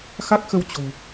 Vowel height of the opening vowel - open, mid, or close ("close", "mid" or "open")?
open